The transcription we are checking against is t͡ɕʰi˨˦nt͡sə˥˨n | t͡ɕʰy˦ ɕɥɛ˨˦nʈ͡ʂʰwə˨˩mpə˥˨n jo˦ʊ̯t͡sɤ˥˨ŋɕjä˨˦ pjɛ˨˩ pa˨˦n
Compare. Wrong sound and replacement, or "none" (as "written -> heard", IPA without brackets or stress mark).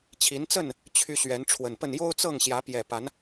m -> n